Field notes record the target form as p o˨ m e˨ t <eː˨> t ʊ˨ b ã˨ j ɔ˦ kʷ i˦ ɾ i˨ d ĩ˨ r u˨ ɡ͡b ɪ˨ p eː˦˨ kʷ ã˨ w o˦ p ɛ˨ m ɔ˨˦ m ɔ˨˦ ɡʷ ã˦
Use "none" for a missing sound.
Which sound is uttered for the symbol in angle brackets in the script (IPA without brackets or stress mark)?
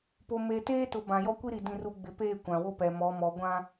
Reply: eː˦